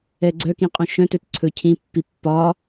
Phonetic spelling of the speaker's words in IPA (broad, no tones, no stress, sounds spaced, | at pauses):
ɛ ɡ͡ǀ œ k ĩ qʼ õ ʃ œ̃ t ɵ t ǀʰ ɵ cʰ ĩ pː i pː ɒ